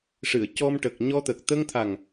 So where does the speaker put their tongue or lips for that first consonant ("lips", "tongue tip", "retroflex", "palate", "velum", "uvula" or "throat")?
retroflex